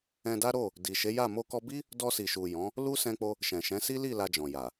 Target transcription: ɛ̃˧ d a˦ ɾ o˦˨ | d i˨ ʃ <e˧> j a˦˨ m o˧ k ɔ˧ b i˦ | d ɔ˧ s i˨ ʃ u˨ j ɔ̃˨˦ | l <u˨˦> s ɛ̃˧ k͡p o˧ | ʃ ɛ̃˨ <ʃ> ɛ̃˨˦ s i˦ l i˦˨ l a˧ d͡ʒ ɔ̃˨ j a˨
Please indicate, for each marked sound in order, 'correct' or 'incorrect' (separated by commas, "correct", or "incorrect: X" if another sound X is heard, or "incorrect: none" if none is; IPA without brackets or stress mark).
incorrect: e˨˦, incorrect: u˦, correct